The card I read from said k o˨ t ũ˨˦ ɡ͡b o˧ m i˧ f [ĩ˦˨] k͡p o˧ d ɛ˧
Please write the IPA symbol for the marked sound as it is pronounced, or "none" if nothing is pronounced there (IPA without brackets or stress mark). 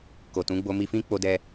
ĩ˦